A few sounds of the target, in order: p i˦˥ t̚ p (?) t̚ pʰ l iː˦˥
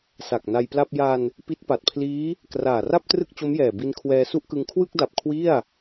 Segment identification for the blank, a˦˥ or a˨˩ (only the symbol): a˨˩